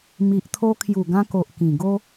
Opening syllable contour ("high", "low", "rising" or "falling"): low